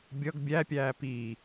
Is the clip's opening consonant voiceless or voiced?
voiced